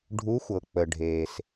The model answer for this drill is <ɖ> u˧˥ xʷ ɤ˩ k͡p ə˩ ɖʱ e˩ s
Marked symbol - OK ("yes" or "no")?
no